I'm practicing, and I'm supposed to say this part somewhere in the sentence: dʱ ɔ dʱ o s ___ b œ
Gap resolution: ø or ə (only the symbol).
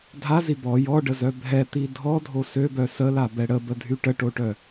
ø